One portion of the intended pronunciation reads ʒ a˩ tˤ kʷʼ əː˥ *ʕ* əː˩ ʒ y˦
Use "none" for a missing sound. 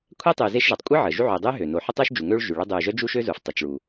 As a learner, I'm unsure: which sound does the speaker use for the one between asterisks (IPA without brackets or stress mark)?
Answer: ʕ